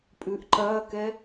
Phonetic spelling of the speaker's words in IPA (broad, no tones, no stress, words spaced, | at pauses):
pʼʉʔǃɐːkɛ